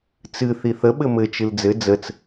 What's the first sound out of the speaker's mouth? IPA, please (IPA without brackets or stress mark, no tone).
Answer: t͡s